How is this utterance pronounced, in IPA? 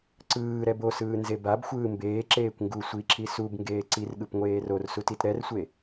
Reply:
ǀ ɯː ɾ ɛ b o s ɯː n z e b a b xʷ ɯː m b eː ǁ eː kʷ ŋ ɡ u sʷ i ǁ i s u b ŋ ɡ eː ǀ i r ɠ ɯ p ŋʷ eː r o r s u t i t ɾ ɛ r sʷ e

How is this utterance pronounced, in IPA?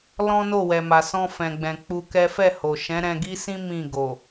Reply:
l ɔ̃˦ n o˦˨ w ɛ˨ m a˨ s ɔ̃˧ f ɛ̃˨ ɡ͡b ɛ̃˨ k͡p u˧ k ɛ˦ f ɛ˦˨ h o˨ ʃ ɛ̃˨˦ ɾ ɛ̃˧ ɡ i˦ s ĩ˦ m ĩ˦˨ ɡ o˨

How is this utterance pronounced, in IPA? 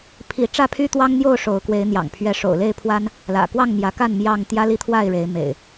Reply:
pʰ i˨˦ ʈ͡ʂ ä˥˨ pʰ y˦ t̪ w ɑ˦ ŋ n̪ j o˥˨ ʊ̯ ʂ o˨˦ ʊ̯ k w e˨˦ ɪ̯ n̪ j ɑ̰˨˩ ŋ pʰ ɥ ɛ˨˦ ʂ o̰˨˩ ʊ̯ l e˥˨ ɪ̯ pʰ w a˦ n | l ä̰˨˩ k w ɑ˥˨ ŋ m j ä˨˦ k a˥˨ n m j ɑ˥˨ ŋ t̪ j ä˦ l i˦ t̪ʰ w a˥˨ ɪ̯ ɻ e˨˦ ɪ̯ m ḛ˨˩ ɪ̯

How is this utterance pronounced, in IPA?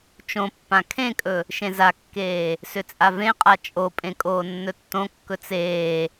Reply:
t͡ʃ õ pː ã kʰ ẽ kʼ ɵ | ʃ ẽ z a kː eː | s ʏ t͡sʼ a v ẽ qʼ a t͡ʃʼ o pʼ ẽ kʼ oː nː ɵ tː õ kː ɵ t͡s eː

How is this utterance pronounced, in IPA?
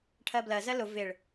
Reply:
ʈʰ ɜ b l ɜ z ɜ l ʊ v ɪ ɭ

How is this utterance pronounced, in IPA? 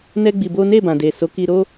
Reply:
n ɛ˦ ɡ͡b i˧ b o˦ n e˦˨ b ã˨ d e˨ s o˨˦ k i˧ ɾ o˦

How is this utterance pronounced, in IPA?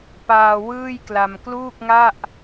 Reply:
p aː˧ w ɯː˥˩ j k l a˧ m k l uː˥˩ k̚ ŋ a˥˩ ʔ

